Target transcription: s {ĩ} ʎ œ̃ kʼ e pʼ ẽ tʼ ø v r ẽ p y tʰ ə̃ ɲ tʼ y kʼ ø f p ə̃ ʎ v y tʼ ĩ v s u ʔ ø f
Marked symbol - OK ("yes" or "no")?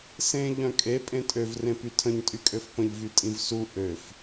no